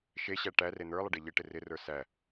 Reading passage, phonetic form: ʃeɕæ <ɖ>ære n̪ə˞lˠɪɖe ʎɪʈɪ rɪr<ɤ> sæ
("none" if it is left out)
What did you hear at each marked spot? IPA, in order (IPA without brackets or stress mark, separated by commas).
ʈ, ə˞